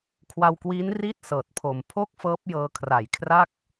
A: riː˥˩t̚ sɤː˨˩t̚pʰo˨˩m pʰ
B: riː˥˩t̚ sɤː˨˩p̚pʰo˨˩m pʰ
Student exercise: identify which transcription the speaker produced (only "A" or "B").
A